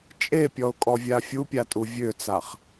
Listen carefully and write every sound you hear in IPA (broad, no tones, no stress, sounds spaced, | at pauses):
t͡ʃʼ e pʲ ɔ ʊ̯ kʼ ɔ vʲ a fʲ u pʲ a tʼ u vʲ ø t͡s a χ